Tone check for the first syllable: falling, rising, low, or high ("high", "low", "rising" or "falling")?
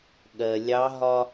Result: low